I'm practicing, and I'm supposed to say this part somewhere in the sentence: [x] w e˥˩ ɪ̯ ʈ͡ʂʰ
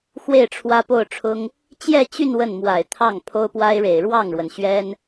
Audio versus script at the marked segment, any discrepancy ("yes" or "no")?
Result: no